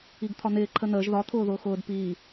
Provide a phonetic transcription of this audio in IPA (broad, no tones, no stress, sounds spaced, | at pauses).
i ɡ t̪ʰ ɒ n̪ ɪː ǃʰ ə n̪ əː ʒ ð ɒ t̪ʰ ʊː ð ʊː x ʊː d p iː